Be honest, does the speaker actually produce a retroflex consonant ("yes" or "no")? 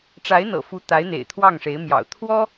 yes